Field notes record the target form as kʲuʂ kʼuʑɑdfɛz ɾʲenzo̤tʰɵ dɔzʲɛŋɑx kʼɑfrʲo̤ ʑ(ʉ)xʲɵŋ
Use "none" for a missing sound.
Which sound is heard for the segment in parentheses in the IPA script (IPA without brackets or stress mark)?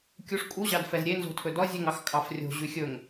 ʉ